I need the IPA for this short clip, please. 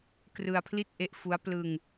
k r ɯ˧ a̯ pʰ l i˥˩ t̚ ʔ e˦˥ ʔ f u˦˥ a̯ p l ɯ˧ ŋ

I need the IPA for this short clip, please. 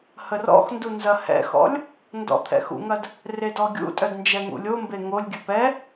h ə r ɔ̰ x n d u n z ɐ h ɛ̰ x ɔ̰ lʲ | n d ɔ̰ t̪ʰ ɛ̰ x ṵ ŋ ɐ d | r e d ɔ ɡʲ ṵ tʼ œ d n d͡ʒ ɛ ŋ ṵ lʲ o m b e ŋ o lʲ ɡʲ ə p ɛ

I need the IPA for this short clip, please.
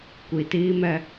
kʷ i˨ t iː˦ m ɛ˦

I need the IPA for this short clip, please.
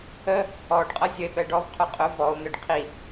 ə | ɔ ɖ qʼ ʌ zʲ ə e̯ p ɛ ɖ ɔ v qʰ ʊ qʼ ʊ v ɔ o̯ n̪ ɪ ɖ qʰ i

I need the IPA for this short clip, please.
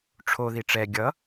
ʈ͡ʂʰ o ð i ʈ͡ʂ ɛ ɡʲ ʌ

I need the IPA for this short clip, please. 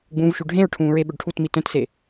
ɡ͡b ũː v ʃ u ɖʱ ẽ ɹ ʈʰ ũː ɹ e ɓ ɵ ɖ ʈʰ u t m i t œ̃ t s e

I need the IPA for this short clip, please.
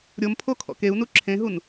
ɾʲ o m pʰ o kʰ ɔ̰ k e u̯ n u ǁʰ ẽ ɦ u n

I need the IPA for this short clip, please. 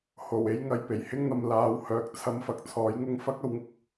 h o˨˩ w e˥ j ŋ ɐ˧ j p e˨˩ j h ɪ˥ ŋ n̪ ɐ˨ m l aː˨˥ w h œː˨ k̚ t͡sʰ ɐ˨ m f ɐ˨ k̚ t͡sʰ ɔː˨˥ j ŋ ʊ˥ ŋ f ɐ˥ k̚ ɐ˥ w ŋ ʊ˧ k̚

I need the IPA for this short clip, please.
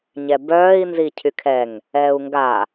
ɲ ɛ b œː i̯ n z i cʰ y kʰ ɛ ŋ | ɛː u̯ ŋ ɡ aː

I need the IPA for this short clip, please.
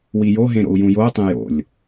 w i j o ɦ ẽ ɾ o̰ u̯ j ũ j o u̯ tˤ ẽ j o̰ lʲ

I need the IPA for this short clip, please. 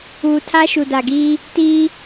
uː˨ tʰ a˦ ʃ u˨ d a˨ ɡ iː˦ | t iː˦

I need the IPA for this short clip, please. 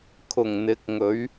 kʰ ʊ˨˩ ŋ n̪ ɪ˨˥ k̚ ŋ ɵ˨˥ ɥ

